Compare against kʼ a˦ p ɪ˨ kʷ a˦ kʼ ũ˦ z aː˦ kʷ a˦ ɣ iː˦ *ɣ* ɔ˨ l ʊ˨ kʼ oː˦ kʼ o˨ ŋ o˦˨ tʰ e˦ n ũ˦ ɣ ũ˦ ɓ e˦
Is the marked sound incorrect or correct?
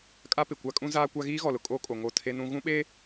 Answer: correct